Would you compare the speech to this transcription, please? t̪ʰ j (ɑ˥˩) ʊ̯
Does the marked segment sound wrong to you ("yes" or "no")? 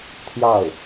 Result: no